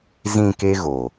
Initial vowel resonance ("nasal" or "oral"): nasal